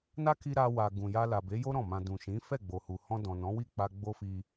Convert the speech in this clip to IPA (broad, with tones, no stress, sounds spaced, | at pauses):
n a˦ k i˧ ɾ a˧ w a˨ ɡ ũ˨ j a˧ l a˨ b e˨˦ j o˦ ɾ ɔ̃˦˨ m ã˧ d ũ˨ ʃ ĩ˨˦ f ɛ˦˨ ɡ͡b o˨ h u˨ h ɔ̃˧ d ɔ̃˨ n ɔ̃˨˦ w i˦˨ k͡p a˧ ɡ͡b o˦ f i˧